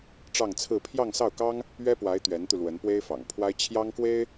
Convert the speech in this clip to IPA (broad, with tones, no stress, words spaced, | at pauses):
ʈ͡ʂɑ˥˧ŋt͡sʰɹ̩˥˧ pʰjɑ˥˧ŋsɑ˥˩ʊ̯kɑ˥ŋ | ɥɛ˥pwa˧˥ɪ̯ t̪ɥɛ˧˥nt̪u˧lwə˧˥npwe˥ɪ̯ fɑ̰˨˩ŋpʰwa˥ɪ̯ t͡ɕʰjɑ˥ŋkwe˥ɪ̯